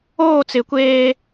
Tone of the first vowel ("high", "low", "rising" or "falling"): falling